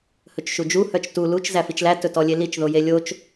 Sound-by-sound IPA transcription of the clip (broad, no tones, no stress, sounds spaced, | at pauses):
h ɵ t͡ʃ ʃ u d͡ʒ u h œ t͡ʃ t u l u t͡ʃ z æ f i t͡ʃ l æ t ɵ t ɔ lʲ e l i t͡ʃ ð o j e lʲ o t͡ʃ